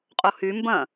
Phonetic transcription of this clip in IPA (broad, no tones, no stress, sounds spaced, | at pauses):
qʼ o h y m b ɐ̃